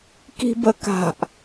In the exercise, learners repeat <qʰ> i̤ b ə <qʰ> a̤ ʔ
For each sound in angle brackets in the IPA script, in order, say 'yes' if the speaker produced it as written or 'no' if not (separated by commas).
no, no